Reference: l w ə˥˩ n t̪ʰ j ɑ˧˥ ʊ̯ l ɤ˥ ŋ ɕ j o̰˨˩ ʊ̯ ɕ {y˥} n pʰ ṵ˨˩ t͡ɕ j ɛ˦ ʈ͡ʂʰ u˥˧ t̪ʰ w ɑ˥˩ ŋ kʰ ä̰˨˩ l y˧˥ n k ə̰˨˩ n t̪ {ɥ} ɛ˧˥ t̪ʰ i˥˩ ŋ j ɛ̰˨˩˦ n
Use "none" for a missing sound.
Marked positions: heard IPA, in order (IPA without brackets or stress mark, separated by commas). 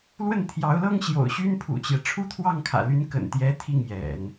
y˥, j